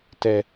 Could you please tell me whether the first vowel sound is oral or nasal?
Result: oral